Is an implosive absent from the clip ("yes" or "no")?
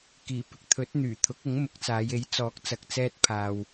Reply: yes